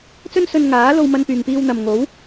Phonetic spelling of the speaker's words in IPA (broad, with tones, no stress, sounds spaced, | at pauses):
t͡s ɵ˥ n s ɵ˧ n ŋ aː˨˥ l o˧ w m ɐ˧ n p yː˨ ŋ p iː˧ w n̪ ɐ˨ m ŋ o˨˥ w